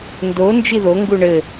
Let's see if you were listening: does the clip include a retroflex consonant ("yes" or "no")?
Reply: yes